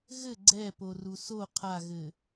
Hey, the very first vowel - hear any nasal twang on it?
no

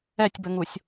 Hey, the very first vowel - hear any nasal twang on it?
no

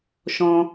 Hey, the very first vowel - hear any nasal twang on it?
yes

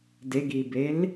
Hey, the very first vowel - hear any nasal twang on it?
no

